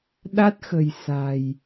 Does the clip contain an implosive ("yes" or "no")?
yes